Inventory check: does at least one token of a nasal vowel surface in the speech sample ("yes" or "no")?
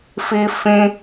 yes